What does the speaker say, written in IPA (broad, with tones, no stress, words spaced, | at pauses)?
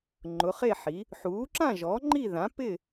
ŋ͡ǃʊ˩˥χe˥˨ħi˩˥ | ħuː˩˥ǁã˥˨ʒɔ˩˥ ŋ͡ǃi˥˨ ðã˩˥pɪ˥˨